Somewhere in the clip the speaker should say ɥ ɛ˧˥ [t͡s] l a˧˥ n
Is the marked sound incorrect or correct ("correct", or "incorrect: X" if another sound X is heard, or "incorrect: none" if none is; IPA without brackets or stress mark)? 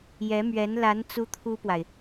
incorrect: n